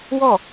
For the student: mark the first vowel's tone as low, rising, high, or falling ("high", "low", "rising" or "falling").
falling